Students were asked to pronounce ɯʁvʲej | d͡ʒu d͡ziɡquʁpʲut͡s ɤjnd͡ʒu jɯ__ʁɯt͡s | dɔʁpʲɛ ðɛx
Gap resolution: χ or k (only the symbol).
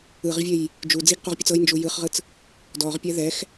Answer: χ